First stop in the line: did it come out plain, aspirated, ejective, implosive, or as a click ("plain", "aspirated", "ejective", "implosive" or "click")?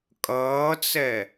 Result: ejective